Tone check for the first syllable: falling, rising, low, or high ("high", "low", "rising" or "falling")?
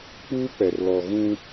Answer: high